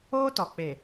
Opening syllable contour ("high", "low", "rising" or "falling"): high